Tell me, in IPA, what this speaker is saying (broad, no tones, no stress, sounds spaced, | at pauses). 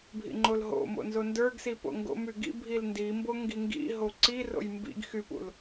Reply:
bʱ ḭ ŋ͡ǃ o l ɦ o̰ m o̰ n z o n d ə˞ ɡ s i p o̰ ŋ ɡ o̰ m y ɡ ḭ bʱ i l n d i m b o ŋ ɡ i ŋ ɡ ḭ ɦ o ǀ i r o̰ j m b ḭ ɡ x y p ṵ l